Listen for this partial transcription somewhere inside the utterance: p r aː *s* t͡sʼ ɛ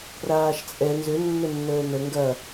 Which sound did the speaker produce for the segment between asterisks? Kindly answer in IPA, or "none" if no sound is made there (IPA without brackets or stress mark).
ʃ